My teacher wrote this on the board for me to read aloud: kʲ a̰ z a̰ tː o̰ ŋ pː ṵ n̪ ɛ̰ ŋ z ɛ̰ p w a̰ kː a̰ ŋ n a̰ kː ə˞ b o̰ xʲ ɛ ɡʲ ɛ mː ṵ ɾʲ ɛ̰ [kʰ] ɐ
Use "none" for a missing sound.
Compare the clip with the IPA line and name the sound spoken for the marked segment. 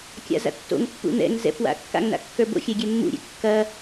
kː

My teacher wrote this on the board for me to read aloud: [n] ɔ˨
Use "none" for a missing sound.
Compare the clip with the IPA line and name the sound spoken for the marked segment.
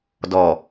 d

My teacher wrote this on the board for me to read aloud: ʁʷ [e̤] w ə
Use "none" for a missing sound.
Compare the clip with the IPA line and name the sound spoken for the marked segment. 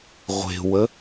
e̤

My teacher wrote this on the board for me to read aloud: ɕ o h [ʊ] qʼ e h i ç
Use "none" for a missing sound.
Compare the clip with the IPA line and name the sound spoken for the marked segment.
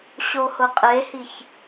ʊ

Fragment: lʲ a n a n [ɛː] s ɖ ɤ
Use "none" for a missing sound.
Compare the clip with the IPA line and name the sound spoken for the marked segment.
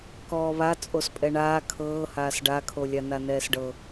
ɛː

